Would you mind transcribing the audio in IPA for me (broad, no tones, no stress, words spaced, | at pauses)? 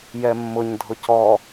jɛmːʊɲ dʱʊcɔ